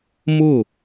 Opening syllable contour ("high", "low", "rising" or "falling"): falling